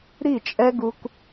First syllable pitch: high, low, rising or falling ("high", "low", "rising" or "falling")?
falling